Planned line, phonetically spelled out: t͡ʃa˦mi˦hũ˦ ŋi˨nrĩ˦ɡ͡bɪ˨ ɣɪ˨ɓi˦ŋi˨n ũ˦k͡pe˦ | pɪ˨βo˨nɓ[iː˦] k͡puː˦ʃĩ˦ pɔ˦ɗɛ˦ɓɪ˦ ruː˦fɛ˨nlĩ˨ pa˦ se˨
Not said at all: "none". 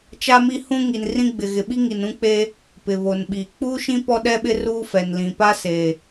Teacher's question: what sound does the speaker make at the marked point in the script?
iː˨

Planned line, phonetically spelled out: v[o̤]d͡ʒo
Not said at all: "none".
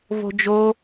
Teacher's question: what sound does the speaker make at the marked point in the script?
o̤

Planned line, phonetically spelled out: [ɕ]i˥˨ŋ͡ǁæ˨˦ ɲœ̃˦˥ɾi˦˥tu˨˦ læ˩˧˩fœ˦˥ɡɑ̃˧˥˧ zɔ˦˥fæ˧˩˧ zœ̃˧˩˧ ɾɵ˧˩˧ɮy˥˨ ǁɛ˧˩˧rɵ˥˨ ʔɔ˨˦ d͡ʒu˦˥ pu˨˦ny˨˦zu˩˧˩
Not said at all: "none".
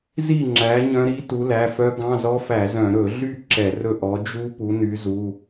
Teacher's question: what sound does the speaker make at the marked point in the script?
z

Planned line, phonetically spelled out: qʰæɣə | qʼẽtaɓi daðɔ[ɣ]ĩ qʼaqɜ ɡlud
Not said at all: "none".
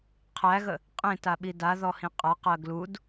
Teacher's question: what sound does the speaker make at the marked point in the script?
h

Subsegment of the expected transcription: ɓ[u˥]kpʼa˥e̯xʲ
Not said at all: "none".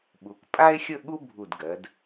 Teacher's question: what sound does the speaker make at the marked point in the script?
u˩˧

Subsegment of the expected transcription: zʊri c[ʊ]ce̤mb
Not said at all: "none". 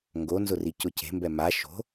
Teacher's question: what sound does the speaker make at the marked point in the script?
ʊ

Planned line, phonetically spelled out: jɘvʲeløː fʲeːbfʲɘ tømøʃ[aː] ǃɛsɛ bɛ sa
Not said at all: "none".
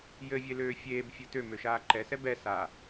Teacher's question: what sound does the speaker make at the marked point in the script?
aː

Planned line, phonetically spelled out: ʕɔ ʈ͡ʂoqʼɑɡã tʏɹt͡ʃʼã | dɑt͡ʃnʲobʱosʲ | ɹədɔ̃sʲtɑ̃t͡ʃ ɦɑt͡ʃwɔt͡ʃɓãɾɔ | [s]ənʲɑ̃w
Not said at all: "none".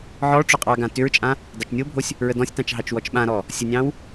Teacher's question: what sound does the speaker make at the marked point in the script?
sʲ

